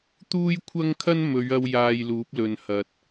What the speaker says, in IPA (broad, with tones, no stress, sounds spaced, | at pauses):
t̪ uː˥ j kʷʰ ɐ˥ ŋ kʰ ɐ˥ n m ɵ˨˧ ɥ ɐ˧ w j aː˧ j l uː˨˥ p̚ l ɵ˨ n h ɐ˨ t̚